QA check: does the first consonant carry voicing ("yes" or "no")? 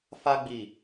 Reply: no